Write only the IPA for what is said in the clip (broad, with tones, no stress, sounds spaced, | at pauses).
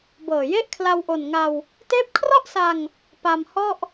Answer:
b ɤː˨˩ j e˥˩ ʔ kʰ l a˧ w ʔ o˨˩ n ŋ a˧ w | t eː˦˥ p̚ kʰ r ɔ˥˩ ʔ s a˧ ŋ | p a˧ m h ɔ˥˩ ʔ